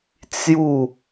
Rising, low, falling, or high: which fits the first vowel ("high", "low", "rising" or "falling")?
falling